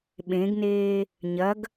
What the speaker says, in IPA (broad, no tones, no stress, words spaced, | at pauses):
ɓẽɡneː | ɲɐɡ